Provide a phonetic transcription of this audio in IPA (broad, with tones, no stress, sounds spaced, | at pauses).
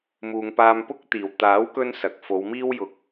m uː˨ ŋ p aː˧ m p ʊ˥ k̚ t̪ iː˨˩ w t̪ aː˨˥ w k ɵ˧ n s ɐ˨ k̚ f o˨˧ w m iː˥ w j ʊ˧ k̚